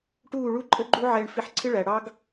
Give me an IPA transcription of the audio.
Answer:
ʈ uː˦˨ ɭ u˦ ǃʼ ə˦ ɡ͡ǃ u˦ ʕ ɛː˧ ɳ f i˧ ħ ǀʰ ɪ˦ ɭ æ˨ ɽ ɑ˦ ɡ

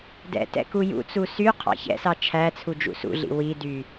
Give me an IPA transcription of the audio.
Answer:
d ɛ̰ t ɛ̰ k u j ṵ t͡s u s y qʰ ɑ̰ ç ɛ̰ s ɑ t͡ʃʰ æ t͡sʰ u d͡ʒ ṵ s ṵ ɮ ḭ w i d y

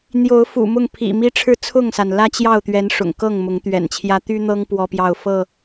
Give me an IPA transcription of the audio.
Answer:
n̪ j o˨˦ ʊ̯ f ṵ˨˩ m ʊ˥˨ ŋ pʰ ḭ˨˩ m i˦ ʈ͡ʂʰ ɻ̩˥˨ t͡sʰ ʊ˥˨ ŋ s a˩ n l ä˦ t͡ɕ j ɑ˥˨ ʊ̯ t̪ ɥ ɛ˨˦ n ʂ ʊ̰˨˩ ŋ k ɤ˥˨ ŋ m ʊ˨˦ ŋ t̪ ɥ ɛ̰˨˩ n t͡ɕʰ j ä˦ t̪ y˦ n̪ ɤ˦ ŋ p w ɔ˦ p j ɑ˥˨ ʊ̯ f ɤ˥˨

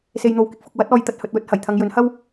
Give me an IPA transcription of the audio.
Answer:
s e˨ j n̪ o˨ w k ɪ˨ k̚ f ʊ˨ k̚ w ɐ˨˥ t̚ ɔː˨˧ j t̪ ɐ˧ t̚ h ɵ˧ t̚ w ɵ˥ t̚ h ɐ˨˩ j t̪ʰ ɐ˨˧ ŋ j ɵ˨˥ n h ɐ˥ w

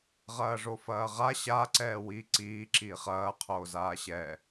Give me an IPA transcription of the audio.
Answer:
ʁ ɐː ʐ o f ɐː ʁ a ɕ a ǀ ɛː w i ǀ iː ǁ iː χ ɐː qʰ oː z aː ɕ ɛ

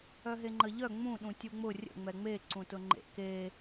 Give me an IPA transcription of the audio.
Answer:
œ ɦ e ŋ͡ǃ ə ʎ œ ŋ͡m ũ ɗ ũ tʲ u ŋ͡m ʊ rʲ ə̰ ŋ͡m ɛ ŋ͡m e ǀ ũ t ʊ ŋ͡ǃ ḛ k e

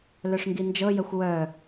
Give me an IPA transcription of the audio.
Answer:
l œ ʂ ŋ ɡ i n d͡ʒ ɤ j ə xʷ w œ

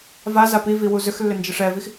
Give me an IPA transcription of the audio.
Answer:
v a z a p i v i w u z ʏ x lː ʏ n d͡ʒ ɯ ʂ ɛ v i x

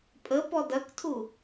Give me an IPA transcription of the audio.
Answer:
pʼ ə p ɔ d ɐ k tʰ u

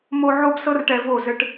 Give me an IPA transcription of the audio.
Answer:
m o˧ ʕ o˦ b s ɤ˦ r ʈ ɛ˧ v o˦˨ z ɘ˧ ʈ

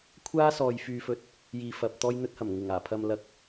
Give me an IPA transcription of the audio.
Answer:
kʷʰ aː˥ s ɔː˨ j f yː˨ f ɵ˨ t̚ | j iː˨ f ɐ˨ p̚ t̪ ɔː˧ j n̪ ɵ˧ t̚ h ɐ˨˩ m ŋ ɪ˨˩ ŋ aː˨˩ pʰ ɐ˨ m l ɐ˨˥ k̚

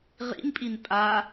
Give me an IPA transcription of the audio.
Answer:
ʁ ḭ n pʼ i n pʼ a

